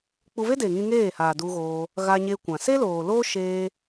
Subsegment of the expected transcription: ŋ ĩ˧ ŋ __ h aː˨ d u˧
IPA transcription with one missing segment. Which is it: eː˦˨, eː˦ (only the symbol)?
eː˦˨